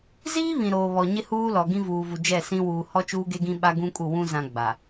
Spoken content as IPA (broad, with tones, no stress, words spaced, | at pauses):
ziː˦ βĩ˨ɾoː˨ βɔ˨ɲɪ˦huː˦lɔ˨ ɡĩ˦vuː˨vu˨ d͡ʒɛ˦˨sĩ˦ wuː˨hɔ˦ t͡ʃuː˦ɡe˦ɡĩ˦ ɓa˦ɡũ˦kʼu˦˨wũ˦ zã˨ ɡ͡ba˨